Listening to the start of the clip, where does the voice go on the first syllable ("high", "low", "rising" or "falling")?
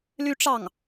high